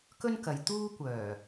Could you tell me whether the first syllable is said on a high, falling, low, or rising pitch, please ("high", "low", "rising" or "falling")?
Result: high